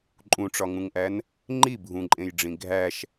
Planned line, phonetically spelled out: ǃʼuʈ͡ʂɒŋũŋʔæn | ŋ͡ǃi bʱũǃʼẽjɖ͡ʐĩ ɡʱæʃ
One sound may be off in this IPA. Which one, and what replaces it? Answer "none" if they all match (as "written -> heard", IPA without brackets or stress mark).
u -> ũ